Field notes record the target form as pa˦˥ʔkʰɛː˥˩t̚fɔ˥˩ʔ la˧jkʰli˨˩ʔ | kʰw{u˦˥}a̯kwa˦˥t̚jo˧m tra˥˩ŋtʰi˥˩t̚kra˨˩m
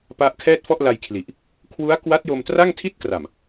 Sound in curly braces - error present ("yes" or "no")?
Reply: no